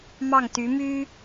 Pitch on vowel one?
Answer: falling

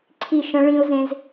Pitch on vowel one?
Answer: falling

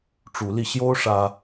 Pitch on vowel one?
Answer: rising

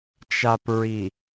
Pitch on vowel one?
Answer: low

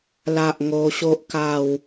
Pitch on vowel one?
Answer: low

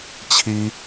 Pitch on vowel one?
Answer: high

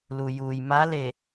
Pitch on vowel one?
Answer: low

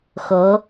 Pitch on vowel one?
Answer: rising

